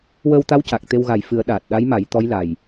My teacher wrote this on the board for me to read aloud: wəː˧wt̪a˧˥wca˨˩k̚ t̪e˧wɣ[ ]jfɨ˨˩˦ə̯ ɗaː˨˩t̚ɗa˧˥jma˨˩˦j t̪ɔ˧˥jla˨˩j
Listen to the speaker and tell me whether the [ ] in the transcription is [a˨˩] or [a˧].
a˨˩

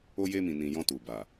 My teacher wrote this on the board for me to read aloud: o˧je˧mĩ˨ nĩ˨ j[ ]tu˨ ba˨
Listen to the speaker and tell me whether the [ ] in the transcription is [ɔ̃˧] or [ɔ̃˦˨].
ɔ̃˧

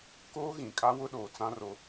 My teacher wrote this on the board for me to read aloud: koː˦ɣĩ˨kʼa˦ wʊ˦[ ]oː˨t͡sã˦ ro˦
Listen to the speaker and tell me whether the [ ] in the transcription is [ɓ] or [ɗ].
ɗ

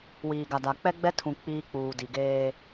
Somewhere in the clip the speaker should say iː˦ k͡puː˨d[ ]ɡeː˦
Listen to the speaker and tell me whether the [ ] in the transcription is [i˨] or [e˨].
i˨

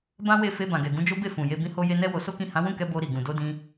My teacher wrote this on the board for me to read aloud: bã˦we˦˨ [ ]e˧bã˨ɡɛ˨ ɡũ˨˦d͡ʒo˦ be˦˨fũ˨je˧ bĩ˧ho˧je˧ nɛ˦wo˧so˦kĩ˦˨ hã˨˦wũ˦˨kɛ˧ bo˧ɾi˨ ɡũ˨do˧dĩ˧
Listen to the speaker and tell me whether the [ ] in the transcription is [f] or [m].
f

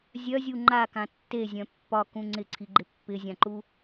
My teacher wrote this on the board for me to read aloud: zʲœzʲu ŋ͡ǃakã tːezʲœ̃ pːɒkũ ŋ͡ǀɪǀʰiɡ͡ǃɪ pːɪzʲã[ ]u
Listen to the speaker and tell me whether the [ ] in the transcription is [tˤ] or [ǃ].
ǃ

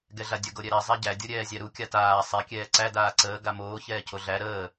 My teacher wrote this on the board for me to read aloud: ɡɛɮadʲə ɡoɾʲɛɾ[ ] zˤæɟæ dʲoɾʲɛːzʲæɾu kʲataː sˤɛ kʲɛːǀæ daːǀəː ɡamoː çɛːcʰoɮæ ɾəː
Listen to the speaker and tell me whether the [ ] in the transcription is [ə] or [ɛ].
ɛ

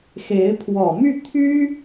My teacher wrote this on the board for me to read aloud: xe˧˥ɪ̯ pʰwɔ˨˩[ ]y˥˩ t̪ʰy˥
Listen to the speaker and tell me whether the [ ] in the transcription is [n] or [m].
m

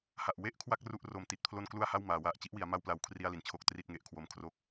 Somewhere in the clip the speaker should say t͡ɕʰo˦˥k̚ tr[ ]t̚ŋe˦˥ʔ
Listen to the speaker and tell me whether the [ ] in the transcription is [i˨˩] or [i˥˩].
i˥˩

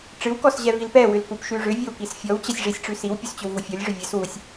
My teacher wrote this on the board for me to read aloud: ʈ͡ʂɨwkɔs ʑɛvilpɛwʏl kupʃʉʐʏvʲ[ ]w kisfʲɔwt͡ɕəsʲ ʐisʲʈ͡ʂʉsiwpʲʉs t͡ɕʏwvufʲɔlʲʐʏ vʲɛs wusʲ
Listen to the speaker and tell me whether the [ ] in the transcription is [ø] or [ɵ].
ɵ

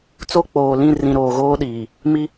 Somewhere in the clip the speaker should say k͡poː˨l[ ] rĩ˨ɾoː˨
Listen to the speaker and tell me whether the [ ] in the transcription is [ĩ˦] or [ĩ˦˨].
ĩ˦˨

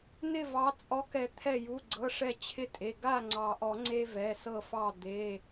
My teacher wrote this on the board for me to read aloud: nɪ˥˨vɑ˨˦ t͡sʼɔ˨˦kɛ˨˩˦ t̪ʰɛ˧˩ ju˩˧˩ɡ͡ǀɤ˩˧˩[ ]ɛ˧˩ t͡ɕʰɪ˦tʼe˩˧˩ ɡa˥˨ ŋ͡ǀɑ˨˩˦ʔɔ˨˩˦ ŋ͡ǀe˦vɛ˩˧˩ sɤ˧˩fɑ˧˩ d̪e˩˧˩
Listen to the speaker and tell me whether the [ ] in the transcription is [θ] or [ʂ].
ʂ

